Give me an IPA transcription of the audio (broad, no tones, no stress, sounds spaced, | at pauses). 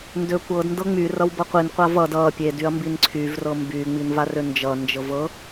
n d ø kʷ ɤ d n d ɤ ŋ͡m y r ʌ w b ʌ qʷ i n qʷ a v ʌ d ʌ pʲ e d y ɐ̯ m b i n ǀʰ y v r ɤ m b y ŋ͡m i n v a r ø n d͡ʒ ʌ n d͡ʒ ɤ v ɤ